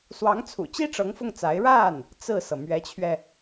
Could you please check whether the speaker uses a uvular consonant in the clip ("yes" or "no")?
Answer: no